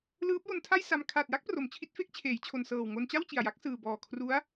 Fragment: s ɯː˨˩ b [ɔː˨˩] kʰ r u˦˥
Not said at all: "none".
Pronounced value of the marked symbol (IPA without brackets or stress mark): ɔː˨˩